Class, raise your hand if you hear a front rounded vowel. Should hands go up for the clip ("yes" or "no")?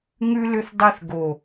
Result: yes